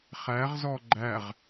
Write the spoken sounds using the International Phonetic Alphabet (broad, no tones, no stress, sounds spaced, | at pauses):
χ æ ʁ z ɔ ɡ͡ǃ æ ʁ